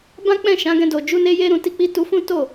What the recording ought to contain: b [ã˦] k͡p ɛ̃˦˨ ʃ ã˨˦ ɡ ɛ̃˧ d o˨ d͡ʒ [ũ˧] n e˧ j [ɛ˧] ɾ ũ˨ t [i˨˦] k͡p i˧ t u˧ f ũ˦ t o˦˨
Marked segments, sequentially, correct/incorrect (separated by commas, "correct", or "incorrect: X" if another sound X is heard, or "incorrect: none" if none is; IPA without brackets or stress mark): correct, incorrect: u˧, incorrect: e˧, incorrect: i˧